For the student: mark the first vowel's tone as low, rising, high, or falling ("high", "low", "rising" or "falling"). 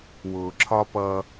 low